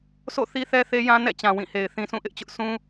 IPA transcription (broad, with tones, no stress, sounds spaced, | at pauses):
sʰ o̰˦˨ θ i˦ θ ɛ˦ θ e˦ j ã˦ n ɛ̰˦˨ t͡ɕ ã˨ w ĩ˦˨ h e˨ ɪ̯ θ ĩ˨ sʰ ũ˦˨ ʔ ɪ˦ ʔ t͡ɕ ʊ˦ ʔ sʰ ũ˦